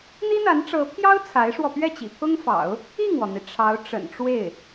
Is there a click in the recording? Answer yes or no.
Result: no